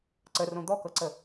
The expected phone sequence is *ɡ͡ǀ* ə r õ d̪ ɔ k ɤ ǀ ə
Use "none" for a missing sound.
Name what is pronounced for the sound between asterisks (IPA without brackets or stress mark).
ǀ